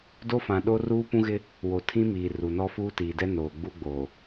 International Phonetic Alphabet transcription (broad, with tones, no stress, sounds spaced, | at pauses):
d o˦ f ã˨ ɗ o˦ r uː˦ p ũ˦ ɣ ɪ˦ | w o˨ tʰ ĩ˦ m iː˨ r u˨ n ɔ˦ f uː˦ t iː˨ d ɛ˦ n oː˨ ɡ͡b u˦ ɡ͡b oː˨